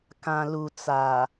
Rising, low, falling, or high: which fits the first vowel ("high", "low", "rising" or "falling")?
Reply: low